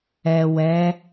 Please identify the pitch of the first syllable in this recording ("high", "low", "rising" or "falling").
low